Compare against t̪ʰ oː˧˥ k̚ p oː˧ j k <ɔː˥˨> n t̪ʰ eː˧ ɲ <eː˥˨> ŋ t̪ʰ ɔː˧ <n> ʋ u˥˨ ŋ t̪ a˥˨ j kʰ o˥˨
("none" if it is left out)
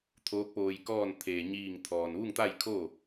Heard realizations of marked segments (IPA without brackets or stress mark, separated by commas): ɔː˥˨, iː˥˨, n